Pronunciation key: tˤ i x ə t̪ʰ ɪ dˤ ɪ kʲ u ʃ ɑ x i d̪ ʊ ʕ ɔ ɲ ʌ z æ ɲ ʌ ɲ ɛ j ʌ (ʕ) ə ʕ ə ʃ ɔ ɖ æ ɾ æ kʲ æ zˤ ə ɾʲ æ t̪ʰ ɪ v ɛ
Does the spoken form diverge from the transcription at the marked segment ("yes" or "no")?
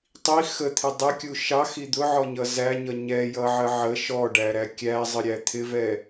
no